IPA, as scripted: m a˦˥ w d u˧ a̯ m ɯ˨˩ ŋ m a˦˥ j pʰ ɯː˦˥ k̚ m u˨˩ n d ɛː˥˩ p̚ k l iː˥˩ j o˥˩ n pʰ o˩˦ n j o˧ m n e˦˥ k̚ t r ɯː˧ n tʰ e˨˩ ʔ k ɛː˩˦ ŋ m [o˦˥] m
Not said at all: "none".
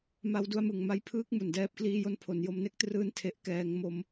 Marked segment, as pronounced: o˦˥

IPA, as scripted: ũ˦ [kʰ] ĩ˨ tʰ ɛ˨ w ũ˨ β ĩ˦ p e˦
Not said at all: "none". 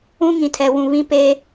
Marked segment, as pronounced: ŋ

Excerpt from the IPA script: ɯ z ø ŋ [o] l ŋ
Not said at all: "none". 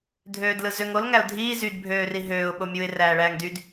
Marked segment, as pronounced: o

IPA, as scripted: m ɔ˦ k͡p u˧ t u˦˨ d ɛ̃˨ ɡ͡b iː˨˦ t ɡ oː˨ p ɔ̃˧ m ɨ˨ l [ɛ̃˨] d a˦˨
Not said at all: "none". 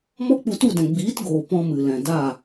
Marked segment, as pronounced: ɛ̃˨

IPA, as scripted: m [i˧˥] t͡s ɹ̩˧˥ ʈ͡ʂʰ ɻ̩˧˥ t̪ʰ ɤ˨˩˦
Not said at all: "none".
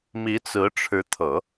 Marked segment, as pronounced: i˧˥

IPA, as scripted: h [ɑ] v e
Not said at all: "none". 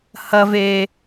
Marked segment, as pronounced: ɐ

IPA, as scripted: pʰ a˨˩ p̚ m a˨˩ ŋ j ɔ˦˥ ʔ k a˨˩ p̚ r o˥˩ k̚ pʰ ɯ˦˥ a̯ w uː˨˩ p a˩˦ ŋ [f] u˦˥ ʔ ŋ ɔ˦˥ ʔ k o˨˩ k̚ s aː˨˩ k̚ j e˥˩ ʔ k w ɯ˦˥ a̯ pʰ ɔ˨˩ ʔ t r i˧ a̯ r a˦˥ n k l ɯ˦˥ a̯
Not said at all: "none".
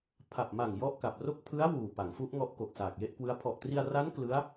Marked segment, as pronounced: f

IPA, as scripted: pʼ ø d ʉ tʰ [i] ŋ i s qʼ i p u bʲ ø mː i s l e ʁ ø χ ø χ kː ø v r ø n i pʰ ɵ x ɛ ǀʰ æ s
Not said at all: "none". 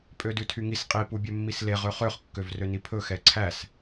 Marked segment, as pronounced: y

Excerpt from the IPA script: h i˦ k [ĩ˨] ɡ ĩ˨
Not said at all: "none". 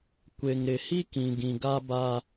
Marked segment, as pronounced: ĩ˨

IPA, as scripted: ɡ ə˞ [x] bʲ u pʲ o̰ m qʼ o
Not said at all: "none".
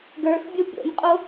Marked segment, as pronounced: x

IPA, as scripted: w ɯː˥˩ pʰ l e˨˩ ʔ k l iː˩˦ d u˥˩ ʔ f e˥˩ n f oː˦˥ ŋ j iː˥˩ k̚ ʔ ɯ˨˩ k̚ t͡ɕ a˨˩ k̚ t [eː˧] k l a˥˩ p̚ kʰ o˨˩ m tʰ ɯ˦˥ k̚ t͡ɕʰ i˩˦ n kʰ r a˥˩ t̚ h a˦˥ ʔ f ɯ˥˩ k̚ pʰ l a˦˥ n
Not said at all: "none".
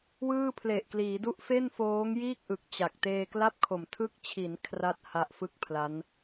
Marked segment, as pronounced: eː˧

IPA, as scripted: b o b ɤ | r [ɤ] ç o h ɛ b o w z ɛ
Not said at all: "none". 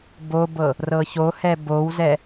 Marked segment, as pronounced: ɤ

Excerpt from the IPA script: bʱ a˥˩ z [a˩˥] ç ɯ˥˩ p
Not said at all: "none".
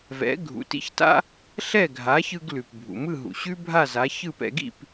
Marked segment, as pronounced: a˩˥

